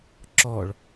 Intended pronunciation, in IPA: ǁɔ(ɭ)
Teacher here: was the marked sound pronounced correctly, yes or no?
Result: yes